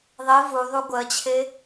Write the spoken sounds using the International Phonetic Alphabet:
ðˤ i v u ðˤ u ɡʷ ɜ t͡ɕʰ e

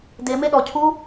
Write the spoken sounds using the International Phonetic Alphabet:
d e m e ɗ ɔ cʰ u

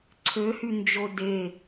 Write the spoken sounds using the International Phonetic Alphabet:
ǀʰ ø h y n d͡ʒ o d e

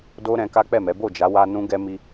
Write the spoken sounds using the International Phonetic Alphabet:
d o˦ ɾ ɛ̃˧ k a˦ k͡p ɛ˦˨ m ɛ˨˦ b o˦˨ d͡ʒ a˨˦ w a˧ n ũ˦ ɡ ɛ˦ m i˧

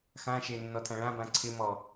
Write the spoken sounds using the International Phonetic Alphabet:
x ã ʃ e nː ɔ tʰ ã ɭ ã b ã ǀʰ ɪ m ɔ

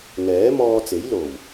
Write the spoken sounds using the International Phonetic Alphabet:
ŋ ɛː˨˥ m ɔː˧ t͡s e˨˥ j l o˨˩ w

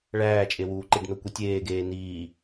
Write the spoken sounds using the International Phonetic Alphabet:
ɭ æː t͡ʃʼ e w uː ǃ i ɖ n o kʷ i tʲ eː ɡ eː n iː

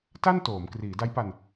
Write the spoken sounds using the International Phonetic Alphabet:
t a˥˩ n t oː˩˦ m k r iː˩˦ d a˦˥ j p a˧ n

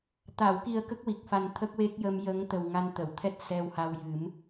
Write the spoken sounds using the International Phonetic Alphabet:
t̪ a˨˩˨ w k i˨˩ ə̯ k ə˦˥ k̚ w i˨˩ k̚ f a˨˩ n t̪ʰ ə˦˥ k̚ w e˦˥ k̚ j ə˧ m j ə˧˥ ŋ t̪ ə˨˩ w ŋ a˧ n t̪ ə˨˩˨ w t̪ʰ ɛ˦˥ t̚ s ɛ˧ w h a˧ w j ɨ˨˩˦ m

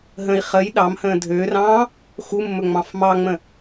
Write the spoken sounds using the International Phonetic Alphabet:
ɦ ə̃ i̯ χ ə j ɗ ɑ m h ə̃ː dʱ ø r ɑ̃ː | x u mː ɵ ŋ͡m ɑ̃ f m ɑ ŋ͡m ə̃

